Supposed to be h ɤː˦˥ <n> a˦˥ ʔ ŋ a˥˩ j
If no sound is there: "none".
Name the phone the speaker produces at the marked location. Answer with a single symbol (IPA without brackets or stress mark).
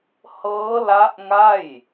l